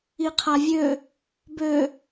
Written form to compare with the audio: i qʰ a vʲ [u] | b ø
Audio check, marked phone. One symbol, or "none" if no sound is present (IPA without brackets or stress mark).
ø